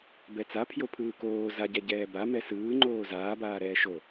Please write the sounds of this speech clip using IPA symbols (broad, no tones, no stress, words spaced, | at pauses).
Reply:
bɛt͡sa pʰjopʰɯːkoː zaɟɛ ɟɛːba mɛsɯː ŋ͡ǃoːzaːbaː ɾɛːʃo